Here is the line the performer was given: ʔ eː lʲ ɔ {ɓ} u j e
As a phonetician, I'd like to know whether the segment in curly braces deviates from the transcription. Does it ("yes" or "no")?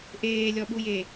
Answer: no